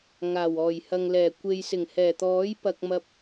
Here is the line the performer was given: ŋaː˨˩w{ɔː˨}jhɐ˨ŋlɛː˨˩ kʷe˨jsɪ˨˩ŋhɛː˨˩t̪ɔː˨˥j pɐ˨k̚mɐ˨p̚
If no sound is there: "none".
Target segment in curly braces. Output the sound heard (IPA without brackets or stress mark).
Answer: ɔː˨˩